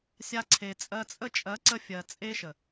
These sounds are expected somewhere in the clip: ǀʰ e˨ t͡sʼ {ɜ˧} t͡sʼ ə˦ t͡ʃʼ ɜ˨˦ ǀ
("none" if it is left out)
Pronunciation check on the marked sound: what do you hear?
ɜ˧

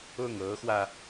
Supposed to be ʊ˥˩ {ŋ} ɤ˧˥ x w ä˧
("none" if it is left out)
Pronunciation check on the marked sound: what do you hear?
ŋ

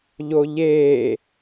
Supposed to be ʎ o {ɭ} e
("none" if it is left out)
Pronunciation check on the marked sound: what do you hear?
ʎ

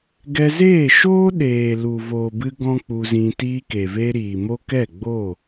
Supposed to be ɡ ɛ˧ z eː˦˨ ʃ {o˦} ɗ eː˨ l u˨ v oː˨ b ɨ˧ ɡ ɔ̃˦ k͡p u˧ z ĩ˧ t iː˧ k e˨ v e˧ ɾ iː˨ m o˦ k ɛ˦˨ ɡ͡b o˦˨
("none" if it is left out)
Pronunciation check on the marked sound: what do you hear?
oː˦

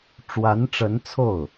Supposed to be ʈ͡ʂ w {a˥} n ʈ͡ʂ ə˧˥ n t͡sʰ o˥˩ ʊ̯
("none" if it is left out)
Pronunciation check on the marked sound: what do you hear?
a˧˥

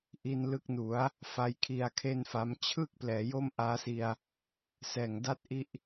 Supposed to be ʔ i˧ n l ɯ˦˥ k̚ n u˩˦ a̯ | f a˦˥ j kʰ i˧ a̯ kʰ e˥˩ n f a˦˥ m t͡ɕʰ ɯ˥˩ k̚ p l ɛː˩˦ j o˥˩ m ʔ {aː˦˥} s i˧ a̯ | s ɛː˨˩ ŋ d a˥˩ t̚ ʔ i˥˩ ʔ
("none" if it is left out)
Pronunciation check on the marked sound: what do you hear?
aː˦˥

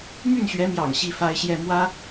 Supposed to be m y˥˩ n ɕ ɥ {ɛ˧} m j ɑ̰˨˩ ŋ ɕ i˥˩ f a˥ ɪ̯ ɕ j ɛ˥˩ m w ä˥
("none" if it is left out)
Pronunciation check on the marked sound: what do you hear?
ɛ˧˥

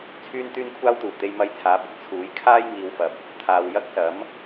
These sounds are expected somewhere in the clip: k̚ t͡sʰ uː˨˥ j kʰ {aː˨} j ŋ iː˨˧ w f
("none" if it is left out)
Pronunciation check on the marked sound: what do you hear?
aː˥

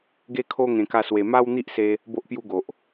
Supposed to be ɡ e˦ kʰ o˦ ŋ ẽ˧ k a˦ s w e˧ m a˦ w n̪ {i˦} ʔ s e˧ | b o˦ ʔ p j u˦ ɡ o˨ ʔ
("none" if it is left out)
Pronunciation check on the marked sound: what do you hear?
i˦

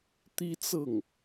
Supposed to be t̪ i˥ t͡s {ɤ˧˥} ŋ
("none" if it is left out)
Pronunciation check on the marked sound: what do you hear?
ɤ˥˩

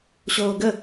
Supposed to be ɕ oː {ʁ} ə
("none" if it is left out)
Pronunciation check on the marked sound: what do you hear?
ɡ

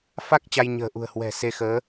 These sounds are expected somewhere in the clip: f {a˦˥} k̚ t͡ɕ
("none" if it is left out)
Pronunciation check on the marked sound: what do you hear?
a˦˥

